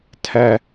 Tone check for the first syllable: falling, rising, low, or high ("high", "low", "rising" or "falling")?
high